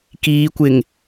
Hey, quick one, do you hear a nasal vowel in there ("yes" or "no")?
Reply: no